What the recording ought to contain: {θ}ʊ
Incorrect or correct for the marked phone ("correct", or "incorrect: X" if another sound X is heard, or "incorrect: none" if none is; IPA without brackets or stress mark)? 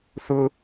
correct